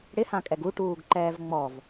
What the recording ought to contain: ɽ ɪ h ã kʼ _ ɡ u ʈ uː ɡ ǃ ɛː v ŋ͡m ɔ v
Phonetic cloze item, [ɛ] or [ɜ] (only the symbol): ɛ